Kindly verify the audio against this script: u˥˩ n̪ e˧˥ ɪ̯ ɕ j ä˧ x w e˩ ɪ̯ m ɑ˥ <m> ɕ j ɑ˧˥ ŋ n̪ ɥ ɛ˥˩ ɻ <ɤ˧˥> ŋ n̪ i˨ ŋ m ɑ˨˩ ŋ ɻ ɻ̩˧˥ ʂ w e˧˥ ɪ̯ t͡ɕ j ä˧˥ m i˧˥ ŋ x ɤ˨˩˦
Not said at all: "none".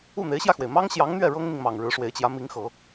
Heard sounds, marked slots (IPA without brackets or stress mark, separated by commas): ŋ, ɤ˥